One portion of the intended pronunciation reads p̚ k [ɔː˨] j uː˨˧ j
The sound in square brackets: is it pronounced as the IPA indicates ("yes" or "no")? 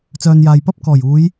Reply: no